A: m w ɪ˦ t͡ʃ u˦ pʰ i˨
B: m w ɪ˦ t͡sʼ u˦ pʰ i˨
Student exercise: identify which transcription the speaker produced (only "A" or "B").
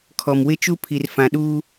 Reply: A